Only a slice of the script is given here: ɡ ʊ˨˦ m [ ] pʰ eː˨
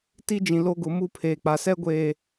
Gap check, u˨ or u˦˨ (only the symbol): u˦˨